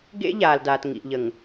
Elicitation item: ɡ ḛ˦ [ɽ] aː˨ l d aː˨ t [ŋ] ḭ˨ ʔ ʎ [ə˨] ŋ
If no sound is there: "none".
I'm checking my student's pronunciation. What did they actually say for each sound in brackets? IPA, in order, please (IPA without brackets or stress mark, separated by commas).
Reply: ʎ, ŋ, ə˨